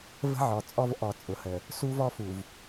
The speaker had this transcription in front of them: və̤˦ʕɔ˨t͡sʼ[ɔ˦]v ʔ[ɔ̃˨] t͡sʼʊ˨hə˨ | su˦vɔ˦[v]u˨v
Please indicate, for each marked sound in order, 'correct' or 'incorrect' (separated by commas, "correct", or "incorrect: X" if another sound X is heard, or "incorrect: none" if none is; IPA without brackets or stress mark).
correct, incorrect: ɔ˨, incorrect: f